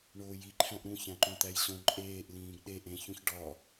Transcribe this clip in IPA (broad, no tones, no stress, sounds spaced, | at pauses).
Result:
ɳ oː j i ǃʰ æ̃ ʔ ɾ ũ ç æ̃ ǃ õ t̪ æ j ɕ õ ǃʼ eː ʔ l ĩː ɡ ɗ e ʔ ẽ ç ũ ç ɖ ɒ